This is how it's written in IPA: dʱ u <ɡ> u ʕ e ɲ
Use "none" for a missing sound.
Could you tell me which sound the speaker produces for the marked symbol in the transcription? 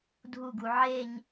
ɡ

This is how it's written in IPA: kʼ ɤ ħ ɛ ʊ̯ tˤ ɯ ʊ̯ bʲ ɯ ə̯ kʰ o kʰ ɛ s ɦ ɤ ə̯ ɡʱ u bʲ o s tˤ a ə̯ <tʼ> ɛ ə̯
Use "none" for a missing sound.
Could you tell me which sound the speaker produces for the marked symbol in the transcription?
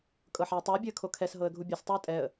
tʼ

